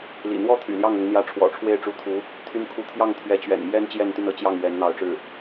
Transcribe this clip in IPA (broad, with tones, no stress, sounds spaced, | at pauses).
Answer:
l ḭ˨˩ n̪ w ɔ˥ t̪ʰ y̰˨˩ l j ɑ˥˩ ŋ ʊ˧˥ ŋ n̪ j ä˧˥ ʈ͡ʂʰ w ɔ̰˨˩ ʈ͡ʂʰ w e˥˩ ɪ̯ ʈ͡ʂ u˧˥ t̪ʰ u˧˥ | t̪ʰ y˥ n kʰ u˥˧ t̪ʰ j ɑ˥˩ ŋ t̪ʰ ɥ ɛ˧˥ t͡ɕ ɥ ɛ̰˨˩ n m j ɛ˥ n t͡ɕ j ɛ˥˧ n t̪ y˥˩ n ɤ˧˥ t͡ɕ j ɑ˥˩ ŋ ɥ ɛ˧˥ n n̪ ɑ˧˥ ʊ̯ ʈ͡ʂ ɻ̩˥˩